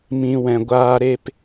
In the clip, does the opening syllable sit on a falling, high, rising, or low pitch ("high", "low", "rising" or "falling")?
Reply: low